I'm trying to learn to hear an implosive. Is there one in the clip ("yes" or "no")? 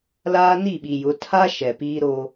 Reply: yes